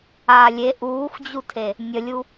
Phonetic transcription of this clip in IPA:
a lʲ e ʔ uː x d͡ʑ u tʰ e | nʲ ə lʲ u

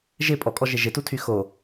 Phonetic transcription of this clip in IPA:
ʒ ɪ pʼ ɔ kʼ ɔ ʒ ɪ ʒ ɪ t u tʰ y x o

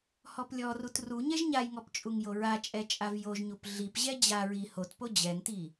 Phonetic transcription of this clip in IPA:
h ɔ p lʲ ɔ r u t r u ɲ ɛ ʒ ɲ a j ŋ ɔ p t͡ʃʼ u ŋ j o ɹ a t͡ʃʼ ɛ t͡ʃʼ a v j o ʒ ɲ u p ɮ i p ʑ ɛ d͡ʑ a ɹ i h o t p o d͡ʑ ɛ ŋ t i

